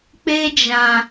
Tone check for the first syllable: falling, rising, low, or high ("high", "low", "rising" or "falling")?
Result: high